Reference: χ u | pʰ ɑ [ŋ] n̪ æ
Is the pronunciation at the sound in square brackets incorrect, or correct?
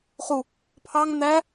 correct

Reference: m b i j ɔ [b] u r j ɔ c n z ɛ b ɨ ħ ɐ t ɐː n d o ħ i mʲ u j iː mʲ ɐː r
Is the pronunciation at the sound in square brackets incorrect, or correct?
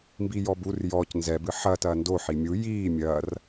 correct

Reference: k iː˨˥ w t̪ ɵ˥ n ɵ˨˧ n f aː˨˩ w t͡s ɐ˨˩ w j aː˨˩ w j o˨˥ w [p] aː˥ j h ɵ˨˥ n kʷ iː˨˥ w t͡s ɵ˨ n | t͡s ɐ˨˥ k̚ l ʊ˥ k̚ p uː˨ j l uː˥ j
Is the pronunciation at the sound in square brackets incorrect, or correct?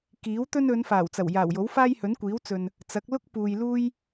incorrect: f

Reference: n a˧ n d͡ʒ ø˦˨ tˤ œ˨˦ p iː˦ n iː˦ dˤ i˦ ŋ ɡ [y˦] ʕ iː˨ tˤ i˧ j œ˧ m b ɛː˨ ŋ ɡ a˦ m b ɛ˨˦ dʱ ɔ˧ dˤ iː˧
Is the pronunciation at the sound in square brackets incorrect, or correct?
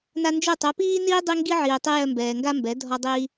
incorrect: i˦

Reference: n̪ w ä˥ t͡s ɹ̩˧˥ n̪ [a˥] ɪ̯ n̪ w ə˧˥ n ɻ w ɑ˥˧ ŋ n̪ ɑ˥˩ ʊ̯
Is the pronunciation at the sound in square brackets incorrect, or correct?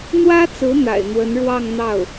incorrect: a̰˨˩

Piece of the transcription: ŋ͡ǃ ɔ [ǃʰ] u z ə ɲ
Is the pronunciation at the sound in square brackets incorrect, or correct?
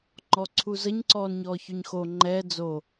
incorrect: ǀʰ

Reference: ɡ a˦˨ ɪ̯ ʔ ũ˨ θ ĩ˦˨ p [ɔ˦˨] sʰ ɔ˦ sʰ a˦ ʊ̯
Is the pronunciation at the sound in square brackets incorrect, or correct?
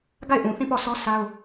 correct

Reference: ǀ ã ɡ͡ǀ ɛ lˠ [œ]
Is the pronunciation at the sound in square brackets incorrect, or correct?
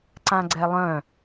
incorrect: œ̃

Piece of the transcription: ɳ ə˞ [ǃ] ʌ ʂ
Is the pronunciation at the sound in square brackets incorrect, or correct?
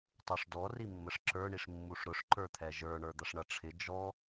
incorrect: d̪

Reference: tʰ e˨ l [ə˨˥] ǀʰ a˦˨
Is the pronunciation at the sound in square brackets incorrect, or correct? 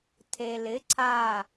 incorrect: ɪ˨˥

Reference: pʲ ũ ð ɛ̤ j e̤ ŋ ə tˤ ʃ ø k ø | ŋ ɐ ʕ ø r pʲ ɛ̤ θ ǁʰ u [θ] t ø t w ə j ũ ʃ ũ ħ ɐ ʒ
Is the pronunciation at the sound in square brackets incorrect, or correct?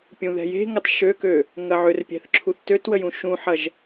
correct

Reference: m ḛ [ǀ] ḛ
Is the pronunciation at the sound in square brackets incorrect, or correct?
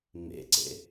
correct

